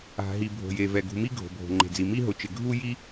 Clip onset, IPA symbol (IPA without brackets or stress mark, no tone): a̤